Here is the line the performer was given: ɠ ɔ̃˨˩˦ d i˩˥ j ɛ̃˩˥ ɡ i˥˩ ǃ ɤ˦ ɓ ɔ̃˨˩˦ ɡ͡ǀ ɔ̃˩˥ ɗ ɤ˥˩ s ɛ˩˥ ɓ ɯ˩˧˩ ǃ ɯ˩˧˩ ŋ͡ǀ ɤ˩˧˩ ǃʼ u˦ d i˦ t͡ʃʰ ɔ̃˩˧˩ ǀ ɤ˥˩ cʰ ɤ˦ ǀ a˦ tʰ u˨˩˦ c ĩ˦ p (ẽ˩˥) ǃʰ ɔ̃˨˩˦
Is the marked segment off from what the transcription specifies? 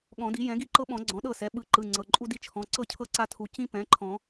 yes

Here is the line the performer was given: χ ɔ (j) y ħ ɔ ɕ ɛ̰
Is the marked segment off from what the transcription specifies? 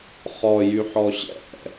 no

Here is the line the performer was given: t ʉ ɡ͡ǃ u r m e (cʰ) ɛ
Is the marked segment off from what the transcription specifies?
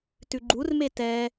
yes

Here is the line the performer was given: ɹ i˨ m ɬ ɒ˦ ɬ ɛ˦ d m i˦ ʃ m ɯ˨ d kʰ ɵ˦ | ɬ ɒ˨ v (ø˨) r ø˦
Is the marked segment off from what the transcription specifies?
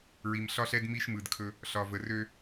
yes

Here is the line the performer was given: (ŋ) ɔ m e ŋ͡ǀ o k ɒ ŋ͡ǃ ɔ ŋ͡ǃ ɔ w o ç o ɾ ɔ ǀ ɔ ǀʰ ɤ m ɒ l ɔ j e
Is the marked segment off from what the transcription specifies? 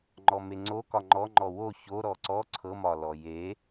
yes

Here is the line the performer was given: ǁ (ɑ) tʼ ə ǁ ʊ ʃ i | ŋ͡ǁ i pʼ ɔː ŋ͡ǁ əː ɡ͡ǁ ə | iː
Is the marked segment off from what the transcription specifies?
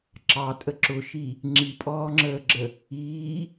no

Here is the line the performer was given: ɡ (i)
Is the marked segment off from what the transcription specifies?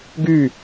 yes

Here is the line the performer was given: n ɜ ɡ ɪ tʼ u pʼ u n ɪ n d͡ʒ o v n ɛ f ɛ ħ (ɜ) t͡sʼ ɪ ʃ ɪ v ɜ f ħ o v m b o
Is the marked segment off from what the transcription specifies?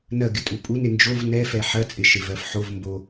no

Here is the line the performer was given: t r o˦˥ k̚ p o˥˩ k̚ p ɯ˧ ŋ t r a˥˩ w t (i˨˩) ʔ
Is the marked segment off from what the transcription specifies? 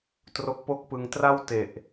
yes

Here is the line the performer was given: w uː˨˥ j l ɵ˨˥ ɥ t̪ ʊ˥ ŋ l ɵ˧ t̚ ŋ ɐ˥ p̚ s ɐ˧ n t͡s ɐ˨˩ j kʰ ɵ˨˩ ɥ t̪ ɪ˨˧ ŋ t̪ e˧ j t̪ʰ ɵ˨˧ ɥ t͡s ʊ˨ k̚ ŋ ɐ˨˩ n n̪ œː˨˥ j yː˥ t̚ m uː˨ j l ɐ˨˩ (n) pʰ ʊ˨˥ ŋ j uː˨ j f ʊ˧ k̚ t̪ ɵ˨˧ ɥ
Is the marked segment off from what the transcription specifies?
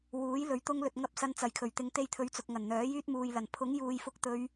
no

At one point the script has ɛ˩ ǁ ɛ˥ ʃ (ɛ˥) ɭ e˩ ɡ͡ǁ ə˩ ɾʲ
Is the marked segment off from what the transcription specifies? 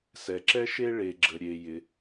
yes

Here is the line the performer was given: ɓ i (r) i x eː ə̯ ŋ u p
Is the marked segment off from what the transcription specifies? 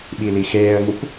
yes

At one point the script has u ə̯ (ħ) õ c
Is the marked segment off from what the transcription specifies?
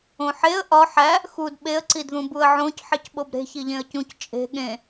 yes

